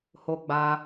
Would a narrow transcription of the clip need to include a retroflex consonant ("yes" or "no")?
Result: no